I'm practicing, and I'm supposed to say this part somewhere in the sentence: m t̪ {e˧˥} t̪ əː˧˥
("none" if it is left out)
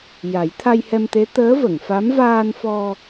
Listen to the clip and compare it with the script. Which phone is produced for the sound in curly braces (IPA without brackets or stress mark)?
e˧˥